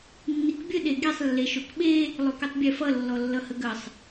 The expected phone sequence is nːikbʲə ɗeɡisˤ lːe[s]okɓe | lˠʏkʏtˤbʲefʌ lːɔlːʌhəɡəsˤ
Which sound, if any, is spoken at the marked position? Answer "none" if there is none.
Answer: ʃ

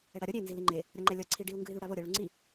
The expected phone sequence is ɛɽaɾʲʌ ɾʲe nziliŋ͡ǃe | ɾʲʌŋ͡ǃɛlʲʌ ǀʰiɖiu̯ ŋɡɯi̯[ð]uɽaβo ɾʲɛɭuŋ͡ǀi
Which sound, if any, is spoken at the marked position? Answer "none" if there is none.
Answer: ð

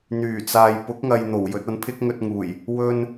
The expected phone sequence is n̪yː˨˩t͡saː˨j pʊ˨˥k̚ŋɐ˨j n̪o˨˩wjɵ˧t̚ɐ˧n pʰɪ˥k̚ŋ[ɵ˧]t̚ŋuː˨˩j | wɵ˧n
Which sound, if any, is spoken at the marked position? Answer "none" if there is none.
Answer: ɵ˧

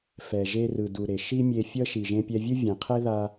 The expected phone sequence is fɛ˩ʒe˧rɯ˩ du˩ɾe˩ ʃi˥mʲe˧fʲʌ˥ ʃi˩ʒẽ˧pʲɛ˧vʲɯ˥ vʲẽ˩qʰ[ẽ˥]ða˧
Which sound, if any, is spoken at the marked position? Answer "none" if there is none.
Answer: e˥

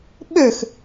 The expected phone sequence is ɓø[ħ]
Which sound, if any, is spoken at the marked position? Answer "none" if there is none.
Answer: x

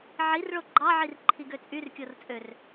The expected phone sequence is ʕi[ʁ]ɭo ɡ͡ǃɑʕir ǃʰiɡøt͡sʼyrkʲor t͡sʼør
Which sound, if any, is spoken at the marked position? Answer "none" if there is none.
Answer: r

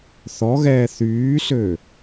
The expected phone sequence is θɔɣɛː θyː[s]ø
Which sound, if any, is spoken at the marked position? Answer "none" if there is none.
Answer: s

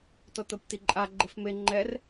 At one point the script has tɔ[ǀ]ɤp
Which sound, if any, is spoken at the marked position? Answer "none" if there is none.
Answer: t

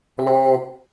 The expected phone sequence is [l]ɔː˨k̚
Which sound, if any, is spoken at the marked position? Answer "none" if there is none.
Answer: l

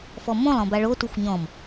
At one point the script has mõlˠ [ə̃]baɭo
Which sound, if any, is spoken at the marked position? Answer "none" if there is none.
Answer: ɔ̃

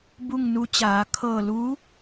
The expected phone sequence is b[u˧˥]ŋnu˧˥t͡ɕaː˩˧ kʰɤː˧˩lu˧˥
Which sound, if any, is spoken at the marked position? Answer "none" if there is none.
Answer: u˥˨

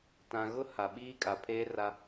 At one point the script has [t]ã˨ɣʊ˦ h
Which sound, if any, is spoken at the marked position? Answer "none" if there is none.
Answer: t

